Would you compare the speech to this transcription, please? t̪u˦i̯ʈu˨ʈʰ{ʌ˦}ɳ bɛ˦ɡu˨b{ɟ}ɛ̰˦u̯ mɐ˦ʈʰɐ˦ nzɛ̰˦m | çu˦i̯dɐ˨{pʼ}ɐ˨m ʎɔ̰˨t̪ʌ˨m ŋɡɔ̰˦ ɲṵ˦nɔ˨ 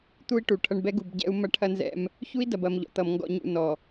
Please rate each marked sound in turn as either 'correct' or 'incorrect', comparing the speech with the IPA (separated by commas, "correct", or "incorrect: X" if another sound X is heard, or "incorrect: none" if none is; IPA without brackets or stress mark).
correct, correct, incorrect: b